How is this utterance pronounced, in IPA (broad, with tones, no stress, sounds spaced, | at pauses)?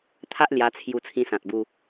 t̪ʰ a˦ ʔ l j a˧ t͡sʰ j u˧ t͡sʰ ĩ˧ s ã˨ t̚ b u˧